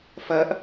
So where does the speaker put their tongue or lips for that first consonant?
lips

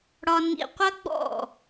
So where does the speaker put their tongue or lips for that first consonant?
retroflex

